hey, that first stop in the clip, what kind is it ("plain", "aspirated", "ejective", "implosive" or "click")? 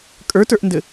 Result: ejective